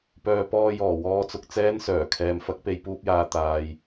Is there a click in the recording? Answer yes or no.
no